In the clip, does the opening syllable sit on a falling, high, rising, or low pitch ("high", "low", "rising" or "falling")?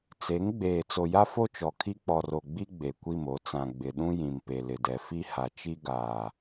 rising